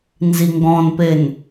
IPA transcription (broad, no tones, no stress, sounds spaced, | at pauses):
n z i ŋ ɡ ɔ̃ n p e n